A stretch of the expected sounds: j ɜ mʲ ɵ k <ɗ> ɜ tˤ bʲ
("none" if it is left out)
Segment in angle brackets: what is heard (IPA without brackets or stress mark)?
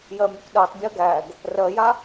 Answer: ɗ